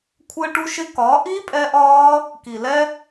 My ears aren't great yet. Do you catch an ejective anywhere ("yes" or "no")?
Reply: yes